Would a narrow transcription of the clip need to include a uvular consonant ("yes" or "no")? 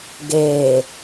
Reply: no